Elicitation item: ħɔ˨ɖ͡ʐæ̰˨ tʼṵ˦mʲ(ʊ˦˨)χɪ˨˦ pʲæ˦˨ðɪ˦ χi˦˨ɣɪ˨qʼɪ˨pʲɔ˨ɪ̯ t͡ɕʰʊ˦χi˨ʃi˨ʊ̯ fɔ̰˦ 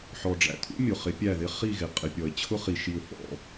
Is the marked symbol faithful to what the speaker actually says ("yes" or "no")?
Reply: no